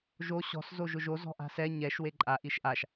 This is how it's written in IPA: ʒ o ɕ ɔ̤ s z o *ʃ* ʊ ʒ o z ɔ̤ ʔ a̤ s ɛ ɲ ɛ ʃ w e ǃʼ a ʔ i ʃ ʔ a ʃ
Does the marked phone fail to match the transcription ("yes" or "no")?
yes